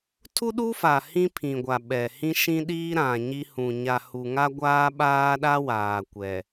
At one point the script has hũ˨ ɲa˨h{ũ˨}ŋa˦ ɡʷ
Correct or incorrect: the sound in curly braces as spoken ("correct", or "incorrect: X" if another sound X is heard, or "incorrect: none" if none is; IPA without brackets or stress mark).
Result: incorrect: u˨